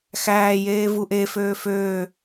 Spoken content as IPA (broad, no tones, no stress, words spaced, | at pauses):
xæːjeː vuʔeføː føː